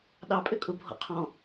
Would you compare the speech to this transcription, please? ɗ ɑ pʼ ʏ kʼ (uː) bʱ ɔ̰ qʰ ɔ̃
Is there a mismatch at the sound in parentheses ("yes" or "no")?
yes